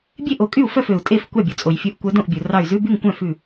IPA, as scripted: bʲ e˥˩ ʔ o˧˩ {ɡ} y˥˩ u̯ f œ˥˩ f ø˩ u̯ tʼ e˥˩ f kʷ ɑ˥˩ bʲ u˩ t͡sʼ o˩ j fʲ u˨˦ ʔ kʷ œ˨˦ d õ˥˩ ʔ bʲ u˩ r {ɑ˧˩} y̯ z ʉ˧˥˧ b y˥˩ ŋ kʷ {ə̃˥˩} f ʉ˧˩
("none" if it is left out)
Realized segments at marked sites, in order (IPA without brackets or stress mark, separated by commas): kʼ, ɑ˧˩, œ̃˥˩